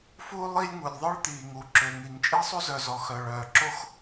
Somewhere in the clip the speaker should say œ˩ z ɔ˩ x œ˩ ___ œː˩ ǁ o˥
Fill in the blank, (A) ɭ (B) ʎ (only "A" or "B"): A